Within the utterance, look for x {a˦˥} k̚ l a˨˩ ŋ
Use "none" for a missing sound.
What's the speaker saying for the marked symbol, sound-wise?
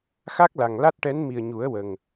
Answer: a˦˥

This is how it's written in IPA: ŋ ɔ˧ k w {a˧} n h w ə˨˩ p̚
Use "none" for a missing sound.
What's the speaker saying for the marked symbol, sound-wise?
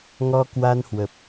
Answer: a˧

